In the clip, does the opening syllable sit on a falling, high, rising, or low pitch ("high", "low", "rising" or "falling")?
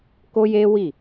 high